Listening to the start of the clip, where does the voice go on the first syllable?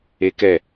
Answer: high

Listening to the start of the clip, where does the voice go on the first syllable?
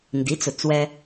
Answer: rising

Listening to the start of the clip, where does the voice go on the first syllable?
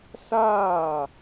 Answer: falling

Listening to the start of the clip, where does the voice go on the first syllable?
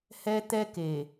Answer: high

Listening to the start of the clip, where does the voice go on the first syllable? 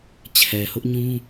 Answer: low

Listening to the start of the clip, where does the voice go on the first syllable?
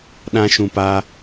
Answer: high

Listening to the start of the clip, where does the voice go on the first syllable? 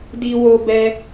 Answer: high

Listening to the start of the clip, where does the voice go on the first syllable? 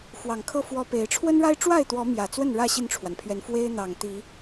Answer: low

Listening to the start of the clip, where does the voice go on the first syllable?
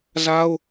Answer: high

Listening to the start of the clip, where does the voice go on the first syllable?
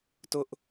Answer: high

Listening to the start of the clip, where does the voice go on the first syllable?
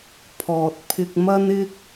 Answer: low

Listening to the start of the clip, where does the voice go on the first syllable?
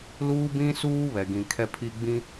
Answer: high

